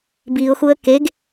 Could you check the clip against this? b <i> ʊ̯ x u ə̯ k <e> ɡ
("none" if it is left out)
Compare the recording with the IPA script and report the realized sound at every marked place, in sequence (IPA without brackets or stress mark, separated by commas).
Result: i, e